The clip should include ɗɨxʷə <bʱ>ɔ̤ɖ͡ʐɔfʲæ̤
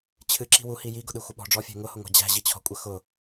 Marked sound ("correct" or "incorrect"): incorrect